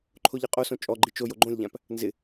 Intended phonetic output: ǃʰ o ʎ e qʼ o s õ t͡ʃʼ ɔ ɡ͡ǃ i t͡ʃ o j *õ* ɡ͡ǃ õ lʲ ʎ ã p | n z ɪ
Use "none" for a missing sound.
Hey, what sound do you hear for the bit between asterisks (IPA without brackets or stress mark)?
o